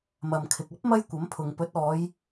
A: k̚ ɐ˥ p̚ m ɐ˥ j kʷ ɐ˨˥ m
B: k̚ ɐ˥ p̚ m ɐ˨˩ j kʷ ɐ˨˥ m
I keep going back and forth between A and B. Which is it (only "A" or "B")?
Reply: A